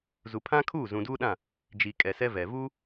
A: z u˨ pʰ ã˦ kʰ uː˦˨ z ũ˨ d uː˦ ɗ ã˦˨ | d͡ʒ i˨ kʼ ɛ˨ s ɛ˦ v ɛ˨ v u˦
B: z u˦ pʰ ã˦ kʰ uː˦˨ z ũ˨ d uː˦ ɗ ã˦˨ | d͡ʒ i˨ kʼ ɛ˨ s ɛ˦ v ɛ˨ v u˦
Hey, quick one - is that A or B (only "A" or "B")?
A